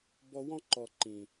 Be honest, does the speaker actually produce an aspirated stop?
no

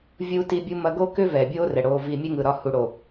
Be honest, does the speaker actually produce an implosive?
no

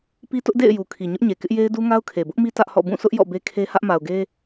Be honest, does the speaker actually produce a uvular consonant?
no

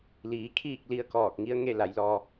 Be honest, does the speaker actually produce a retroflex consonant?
no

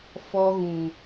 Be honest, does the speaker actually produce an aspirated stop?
no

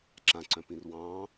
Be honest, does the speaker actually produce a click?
yes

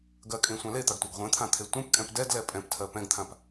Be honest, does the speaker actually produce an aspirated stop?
yes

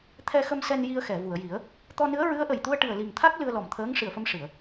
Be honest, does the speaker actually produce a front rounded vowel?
no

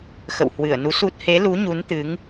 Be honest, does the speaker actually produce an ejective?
no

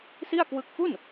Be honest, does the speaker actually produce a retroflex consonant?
no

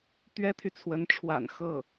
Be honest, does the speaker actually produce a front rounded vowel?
yes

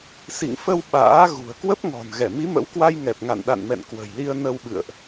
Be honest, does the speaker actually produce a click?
no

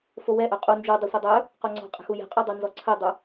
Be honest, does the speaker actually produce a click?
yes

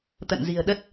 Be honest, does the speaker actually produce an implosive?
yes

